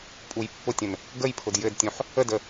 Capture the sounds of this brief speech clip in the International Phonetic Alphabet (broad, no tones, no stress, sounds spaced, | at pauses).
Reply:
pʼ u j pː ʊ tʲ ə̃ n | ɡ ə j pʰ ʊ d j ɘ d tʲ ũ ħ | ə d ə